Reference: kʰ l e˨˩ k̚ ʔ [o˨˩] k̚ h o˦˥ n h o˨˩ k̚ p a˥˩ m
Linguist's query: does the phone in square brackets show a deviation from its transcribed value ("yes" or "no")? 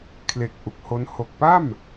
yes